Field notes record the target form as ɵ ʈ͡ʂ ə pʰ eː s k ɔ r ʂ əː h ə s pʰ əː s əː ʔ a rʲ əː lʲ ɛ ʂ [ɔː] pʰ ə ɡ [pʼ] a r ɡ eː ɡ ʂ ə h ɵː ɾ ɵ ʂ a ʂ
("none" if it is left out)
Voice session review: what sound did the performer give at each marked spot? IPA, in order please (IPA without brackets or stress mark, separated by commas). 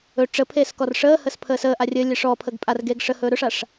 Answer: ɔː, pʼ